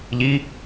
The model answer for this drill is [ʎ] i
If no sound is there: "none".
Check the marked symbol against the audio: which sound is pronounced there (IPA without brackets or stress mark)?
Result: ʎ